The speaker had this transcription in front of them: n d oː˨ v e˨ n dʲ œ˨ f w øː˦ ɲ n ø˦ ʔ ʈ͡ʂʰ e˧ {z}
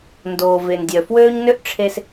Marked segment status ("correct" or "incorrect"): incorrect